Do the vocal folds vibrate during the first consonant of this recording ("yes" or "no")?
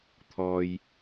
no